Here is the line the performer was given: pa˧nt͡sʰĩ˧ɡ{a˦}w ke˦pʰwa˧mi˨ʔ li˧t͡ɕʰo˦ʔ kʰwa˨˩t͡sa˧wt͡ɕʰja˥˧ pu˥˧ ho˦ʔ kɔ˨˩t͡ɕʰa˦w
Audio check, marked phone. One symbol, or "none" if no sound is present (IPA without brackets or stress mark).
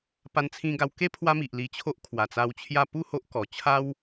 a˧